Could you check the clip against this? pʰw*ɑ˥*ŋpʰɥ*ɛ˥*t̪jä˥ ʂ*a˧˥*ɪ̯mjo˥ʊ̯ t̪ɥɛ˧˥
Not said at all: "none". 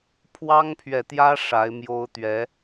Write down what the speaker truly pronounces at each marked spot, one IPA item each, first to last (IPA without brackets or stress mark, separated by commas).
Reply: ɑ˥, ɛ˨, a˧˥